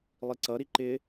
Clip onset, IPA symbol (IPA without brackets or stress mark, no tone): lˠ